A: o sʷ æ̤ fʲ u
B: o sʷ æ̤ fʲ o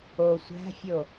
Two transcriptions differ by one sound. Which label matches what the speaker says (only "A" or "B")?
B